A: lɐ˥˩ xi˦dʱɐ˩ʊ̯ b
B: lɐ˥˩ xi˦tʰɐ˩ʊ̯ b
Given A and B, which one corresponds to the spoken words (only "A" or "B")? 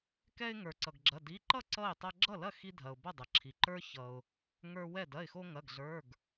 A